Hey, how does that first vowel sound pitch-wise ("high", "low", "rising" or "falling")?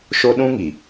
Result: high